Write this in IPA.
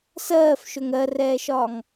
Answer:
s ɜː f ʃ ɵ ŋ ɜ r ɛː ʃ ɒː ŋ

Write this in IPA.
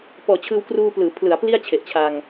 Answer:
p ɔː˨˩ t͡ɕʰ ɯː˧ w k r uː˧ p l ɯː˩˦ pʰ l ɯ˩˦ a̯ p l i˥˩ a̯ t͡ɕʰ e˨˩ ʔ t͡ɕʰ a˧ ŋ

